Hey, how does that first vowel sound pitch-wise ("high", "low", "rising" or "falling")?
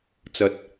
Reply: low